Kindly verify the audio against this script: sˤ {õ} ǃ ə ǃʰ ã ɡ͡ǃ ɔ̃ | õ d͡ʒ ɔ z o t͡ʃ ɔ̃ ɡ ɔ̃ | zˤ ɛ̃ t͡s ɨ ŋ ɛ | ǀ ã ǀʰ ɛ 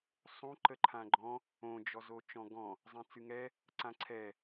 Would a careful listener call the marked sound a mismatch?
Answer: no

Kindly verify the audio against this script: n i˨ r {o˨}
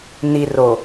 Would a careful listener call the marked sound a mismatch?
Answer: no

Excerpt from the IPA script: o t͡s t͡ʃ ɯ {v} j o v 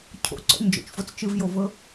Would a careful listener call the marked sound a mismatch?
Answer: no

